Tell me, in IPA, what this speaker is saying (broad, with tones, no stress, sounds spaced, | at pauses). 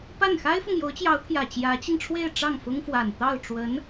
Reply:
p a˥˩ n x a˥ ɪ̯ f ɤ˨ ŋ j o˧˥ ʊ̯ t͡ɕ j ɑ˧˥ ʊ̯ t̪ʰ j ä˨˩ t͡ɕ j ä˧˥ t͡ɕ i˧ ŋ ʈ͡ʂʰ w e˥˧ ɪ̯ ʈ͡ʂ ɑ˥˩ ŋ f ʊ˥ ŋ f w a˨˩ n t̪ ɑ˥˩ ʊ̯ ʈ͡ʂ w ə˧˥ n